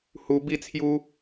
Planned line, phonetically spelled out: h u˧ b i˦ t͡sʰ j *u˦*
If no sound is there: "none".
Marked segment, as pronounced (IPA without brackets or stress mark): u˦